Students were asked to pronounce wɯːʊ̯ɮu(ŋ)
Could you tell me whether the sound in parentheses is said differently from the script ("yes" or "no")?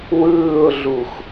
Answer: yes